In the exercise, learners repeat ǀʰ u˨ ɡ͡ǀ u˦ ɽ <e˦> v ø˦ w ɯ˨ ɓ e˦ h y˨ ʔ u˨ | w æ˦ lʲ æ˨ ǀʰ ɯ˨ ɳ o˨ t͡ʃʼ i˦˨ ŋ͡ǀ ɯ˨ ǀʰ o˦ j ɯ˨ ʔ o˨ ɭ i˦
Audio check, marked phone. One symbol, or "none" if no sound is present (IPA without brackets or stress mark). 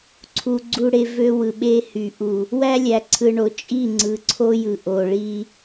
e˦